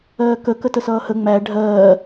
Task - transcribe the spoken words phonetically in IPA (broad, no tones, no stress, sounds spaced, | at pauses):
ɜː k ə k ə t ə s ʌː h ə ŋ͡m æ ɖʱ ɜː